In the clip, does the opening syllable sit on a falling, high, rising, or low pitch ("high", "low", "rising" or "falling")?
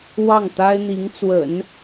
falling